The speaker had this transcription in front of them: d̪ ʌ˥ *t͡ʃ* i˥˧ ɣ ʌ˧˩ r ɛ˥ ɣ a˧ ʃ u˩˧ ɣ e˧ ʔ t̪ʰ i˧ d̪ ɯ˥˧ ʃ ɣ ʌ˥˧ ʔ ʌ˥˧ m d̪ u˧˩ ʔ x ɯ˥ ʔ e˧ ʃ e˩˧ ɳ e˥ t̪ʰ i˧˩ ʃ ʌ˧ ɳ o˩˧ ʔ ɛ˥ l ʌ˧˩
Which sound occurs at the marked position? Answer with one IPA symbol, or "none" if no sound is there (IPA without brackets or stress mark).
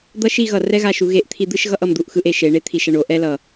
ʃ